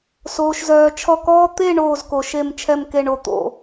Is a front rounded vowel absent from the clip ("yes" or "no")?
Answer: no